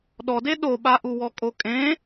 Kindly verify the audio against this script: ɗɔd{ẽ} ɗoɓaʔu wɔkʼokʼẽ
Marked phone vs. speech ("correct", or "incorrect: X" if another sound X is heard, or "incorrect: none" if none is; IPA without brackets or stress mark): incorrect: e